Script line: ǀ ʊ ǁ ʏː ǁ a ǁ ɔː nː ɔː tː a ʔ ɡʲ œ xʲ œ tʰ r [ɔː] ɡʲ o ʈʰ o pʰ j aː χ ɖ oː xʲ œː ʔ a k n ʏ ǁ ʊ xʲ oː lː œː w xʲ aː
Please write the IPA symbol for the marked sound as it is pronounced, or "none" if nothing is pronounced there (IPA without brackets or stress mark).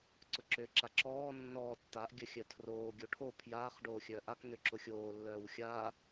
oː